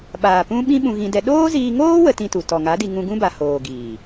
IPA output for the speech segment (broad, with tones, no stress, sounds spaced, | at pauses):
ɓ aː˨ p ũ˦ ɓ ĩ˦ ɓ ũ˧ ɣ ĩ˧ d ɛ˧ ɗ oː˦ z iː˧ ŋ oː˦ w ə˦ t ĩ˦ t u˨ t ɔ˨ ŋ a˨˦ d i˧ ŋ ũ˧ ɡ ũ˦ b a˨ h oː˨ ɡ iː˨